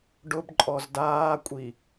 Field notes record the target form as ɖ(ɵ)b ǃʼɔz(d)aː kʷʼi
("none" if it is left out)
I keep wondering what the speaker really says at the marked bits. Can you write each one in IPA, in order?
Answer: ʊ, d

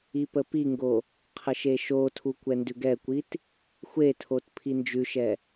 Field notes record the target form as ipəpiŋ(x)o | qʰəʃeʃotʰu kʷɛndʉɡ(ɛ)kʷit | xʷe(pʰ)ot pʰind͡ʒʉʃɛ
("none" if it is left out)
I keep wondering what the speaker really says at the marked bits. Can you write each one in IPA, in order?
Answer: ɡ, ɛ, tʰ

